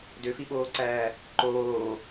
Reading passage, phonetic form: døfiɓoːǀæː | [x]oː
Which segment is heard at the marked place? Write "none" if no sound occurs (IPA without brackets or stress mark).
ǃ